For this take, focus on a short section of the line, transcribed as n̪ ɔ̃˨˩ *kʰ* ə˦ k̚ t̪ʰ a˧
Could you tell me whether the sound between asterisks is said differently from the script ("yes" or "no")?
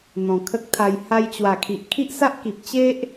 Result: no